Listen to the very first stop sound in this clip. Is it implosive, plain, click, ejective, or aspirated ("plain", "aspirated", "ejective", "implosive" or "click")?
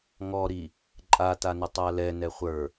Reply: click